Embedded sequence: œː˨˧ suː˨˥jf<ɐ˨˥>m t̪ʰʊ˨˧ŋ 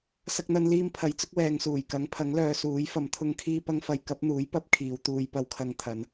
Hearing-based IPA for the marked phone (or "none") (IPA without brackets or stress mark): ɐ˨˥